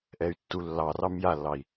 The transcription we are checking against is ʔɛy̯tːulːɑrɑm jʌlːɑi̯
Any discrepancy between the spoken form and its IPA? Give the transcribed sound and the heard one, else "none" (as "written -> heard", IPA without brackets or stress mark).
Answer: ʌ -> a